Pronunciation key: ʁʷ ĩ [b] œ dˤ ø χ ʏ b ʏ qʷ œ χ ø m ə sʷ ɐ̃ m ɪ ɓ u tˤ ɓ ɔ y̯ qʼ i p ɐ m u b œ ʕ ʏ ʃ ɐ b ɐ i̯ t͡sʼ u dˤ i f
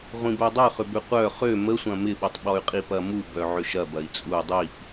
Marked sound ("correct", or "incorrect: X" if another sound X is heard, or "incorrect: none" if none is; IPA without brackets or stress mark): correct